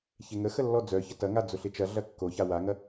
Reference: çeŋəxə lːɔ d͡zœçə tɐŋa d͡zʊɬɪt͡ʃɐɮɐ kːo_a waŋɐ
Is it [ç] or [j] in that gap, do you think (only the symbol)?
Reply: ç